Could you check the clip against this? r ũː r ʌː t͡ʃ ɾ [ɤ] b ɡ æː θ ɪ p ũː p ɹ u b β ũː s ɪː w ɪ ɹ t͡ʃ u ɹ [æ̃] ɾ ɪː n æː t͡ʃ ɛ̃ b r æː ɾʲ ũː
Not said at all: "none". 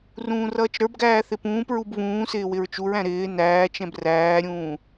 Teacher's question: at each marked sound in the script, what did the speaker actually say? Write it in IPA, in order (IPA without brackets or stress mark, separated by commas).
ə˞, æ̃